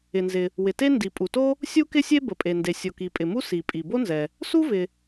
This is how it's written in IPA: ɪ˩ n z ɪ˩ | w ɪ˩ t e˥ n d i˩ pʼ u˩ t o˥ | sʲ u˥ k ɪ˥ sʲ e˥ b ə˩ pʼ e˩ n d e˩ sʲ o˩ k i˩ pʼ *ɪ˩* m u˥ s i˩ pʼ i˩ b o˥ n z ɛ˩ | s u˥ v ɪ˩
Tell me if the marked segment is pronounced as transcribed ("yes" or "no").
yes